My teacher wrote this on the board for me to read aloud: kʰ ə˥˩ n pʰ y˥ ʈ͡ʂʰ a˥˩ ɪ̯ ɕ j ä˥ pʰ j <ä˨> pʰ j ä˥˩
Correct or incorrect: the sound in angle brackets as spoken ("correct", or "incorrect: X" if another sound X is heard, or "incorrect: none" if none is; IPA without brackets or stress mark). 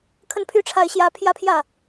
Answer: incorrect: ä˥